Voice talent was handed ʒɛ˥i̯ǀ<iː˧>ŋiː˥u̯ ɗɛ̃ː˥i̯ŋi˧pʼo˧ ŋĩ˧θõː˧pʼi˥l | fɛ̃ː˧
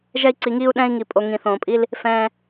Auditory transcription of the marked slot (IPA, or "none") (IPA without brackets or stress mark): i˧